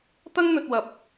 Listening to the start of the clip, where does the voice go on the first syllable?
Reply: high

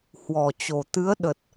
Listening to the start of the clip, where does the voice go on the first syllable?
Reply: low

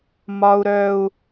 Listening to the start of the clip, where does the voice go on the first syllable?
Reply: low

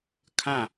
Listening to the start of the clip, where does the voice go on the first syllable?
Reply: falling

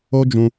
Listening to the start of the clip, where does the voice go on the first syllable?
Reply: high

